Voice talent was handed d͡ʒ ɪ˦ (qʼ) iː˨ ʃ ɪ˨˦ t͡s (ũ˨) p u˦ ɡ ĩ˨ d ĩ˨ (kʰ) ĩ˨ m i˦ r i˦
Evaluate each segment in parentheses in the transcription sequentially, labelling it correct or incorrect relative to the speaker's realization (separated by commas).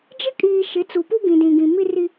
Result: incorrect, incorrect, incorrect